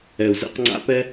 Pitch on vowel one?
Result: low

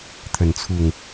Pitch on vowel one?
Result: falling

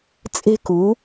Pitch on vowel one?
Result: high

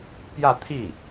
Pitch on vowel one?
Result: falling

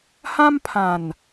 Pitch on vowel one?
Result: high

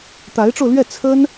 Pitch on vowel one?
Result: rising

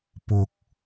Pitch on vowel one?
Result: rising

